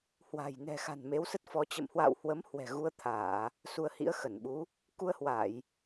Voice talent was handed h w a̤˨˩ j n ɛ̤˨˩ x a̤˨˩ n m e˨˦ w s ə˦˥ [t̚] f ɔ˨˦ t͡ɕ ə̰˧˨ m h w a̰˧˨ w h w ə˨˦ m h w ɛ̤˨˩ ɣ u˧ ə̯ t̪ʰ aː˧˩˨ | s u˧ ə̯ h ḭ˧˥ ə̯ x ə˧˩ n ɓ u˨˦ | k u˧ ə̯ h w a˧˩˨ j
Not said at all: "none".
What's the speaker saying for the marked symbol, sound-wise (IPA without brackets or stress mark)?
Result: t̚